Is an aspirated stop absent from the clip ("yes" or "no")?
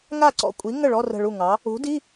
yes